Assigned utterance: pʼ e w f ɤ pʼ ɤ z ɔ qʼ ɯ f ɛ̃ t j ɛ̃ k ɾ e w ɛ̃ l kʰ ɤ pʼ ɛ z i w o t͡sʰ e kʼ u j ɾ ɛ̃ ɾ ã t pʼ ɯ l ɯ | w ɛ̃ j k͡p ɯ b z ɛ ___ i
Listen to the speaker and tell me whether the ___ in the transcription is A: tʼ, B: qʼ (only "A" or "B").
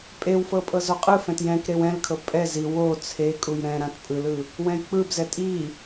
A